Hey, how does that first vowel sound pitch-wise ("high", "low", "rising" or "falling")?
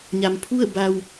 low